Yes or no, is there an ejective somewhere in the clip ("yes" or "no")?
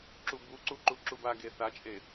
yes